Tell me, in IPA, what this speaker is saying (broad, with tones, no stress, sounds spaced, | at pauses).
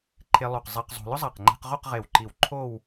ǃʰ e˧ lˠ o˧˩ q zˤ i˧ q zˤ o̤˧ l ʊ˥ zˤ a˧˩ q ŋ͡ǃ e̤˧ q ʁ o˥˧ q ʁ e˧˩ w ǃ i˧˩ w ǃʰ o˥˧ w